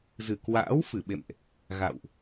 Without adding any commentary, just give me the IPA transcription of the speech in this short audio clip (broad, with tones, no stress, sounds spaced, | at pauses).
z ɨ˨˩ k w a̰ː˧˥ w f ɨ˧˩ ɓ ḛ˧˨ m ʔ | ɣ a̰˧˨ w ʔ